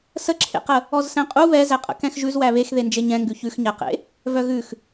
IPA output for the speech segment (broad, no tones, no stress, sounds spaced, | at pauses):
s ə ǁʰ ḛ q ə | ɔ z s ɛ̃ qʼ u β ɛ z æ qʼ ə̰ k ɛ̃ x ʒ ʉ z w æ β e x ð e n d͡ʒ e ɲ ɛ̃ ŋ ɡ ʉ ç ʉ x ɲ æ q ḛ | v œ ɣ ʉ x